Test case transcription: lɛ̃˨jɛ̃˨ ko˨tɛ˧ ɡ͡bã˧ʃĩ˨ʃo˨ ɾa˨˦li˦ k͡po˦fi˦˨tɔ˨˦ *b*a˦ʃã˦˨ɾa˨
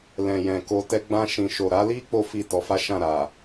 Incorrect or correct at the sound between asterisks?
incorrect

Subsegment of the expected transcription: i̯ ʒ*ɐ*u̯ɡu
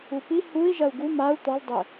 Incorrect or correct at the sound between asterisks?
correct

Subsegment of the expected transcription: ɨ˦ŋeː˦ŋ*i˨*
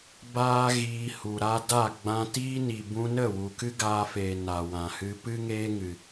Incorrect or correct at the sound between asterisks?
incorrect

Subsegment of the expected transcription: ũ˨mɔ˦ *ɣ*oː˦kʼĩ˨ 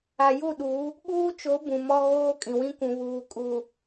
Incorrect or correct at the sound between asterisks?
correct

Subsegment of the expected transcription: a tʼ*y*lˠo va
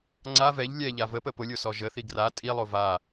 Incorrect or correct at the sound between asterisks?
incorrect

